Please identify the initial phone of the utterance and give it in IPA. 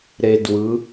ɾ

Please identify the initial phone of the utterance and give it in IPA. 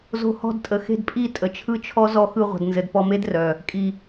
z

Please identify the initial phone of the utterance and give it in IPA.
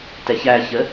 t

